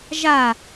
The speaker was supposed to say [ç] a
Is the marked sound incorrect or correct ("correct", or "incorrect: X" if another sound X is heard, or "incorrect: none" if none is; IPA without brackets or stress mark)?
incorrect: ʒ